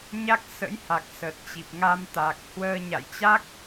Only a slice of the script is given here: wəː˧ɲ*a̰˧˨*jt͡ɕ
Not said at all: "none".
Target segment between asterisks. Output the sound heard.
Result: a̰˧˨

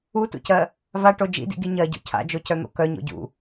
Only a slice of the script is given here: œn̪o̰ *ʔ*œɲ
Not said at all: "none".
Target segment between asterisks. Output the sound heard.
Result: k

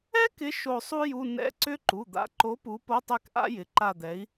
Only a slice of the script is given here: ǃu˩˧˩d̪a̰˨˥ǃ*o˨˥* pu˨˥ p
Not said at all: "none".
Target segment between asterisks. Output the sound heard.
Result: o˨˥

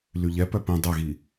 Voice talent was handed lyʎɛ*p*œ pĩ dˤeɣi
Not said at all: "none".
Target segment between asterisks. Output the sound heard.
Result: p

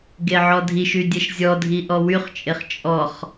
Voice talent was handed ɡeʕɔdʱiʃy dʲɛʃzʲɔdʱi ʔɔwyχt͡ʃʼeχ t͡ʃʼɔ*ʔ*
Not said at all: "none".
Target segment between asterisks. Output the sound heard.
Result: χ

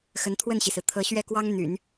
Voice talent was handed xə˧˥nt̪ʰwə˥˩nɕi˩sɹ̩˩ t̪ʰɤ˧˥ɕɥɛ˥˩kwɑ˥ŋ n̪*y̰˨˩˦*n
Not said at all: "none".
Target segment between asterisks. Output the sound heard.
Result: y̰˨˩˦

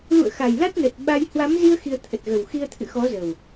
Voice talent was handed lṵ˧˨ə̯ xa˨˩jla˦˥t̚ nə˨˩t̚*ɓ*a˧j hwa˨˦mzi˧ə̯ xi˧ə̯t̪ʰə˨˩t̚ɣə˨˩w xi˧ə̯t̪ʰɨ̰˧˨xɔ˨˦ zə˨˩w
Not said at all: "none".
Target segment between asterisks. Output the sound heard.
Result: ɓ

